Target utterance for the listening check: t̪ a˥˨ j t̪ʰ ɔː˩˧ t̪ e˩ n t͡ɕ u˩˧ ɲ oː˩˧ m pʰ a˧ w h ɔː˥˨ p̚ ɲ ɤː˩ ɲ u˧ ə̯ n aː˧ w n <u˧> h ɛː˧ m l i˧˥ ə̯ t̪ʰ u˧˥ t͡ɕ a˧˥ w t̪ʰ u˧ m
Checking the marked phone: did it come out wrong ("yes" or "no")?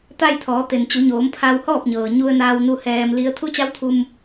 no